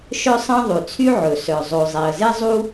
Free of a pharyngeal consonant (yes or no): no